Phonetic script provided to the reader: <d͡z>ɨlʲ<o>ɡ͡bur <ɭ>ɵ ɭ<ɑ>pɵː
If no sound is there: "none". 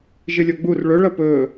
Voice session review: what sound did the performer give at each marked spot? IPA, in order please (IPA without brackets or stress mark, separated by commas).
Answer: ʒ, o, ɭ, ɐ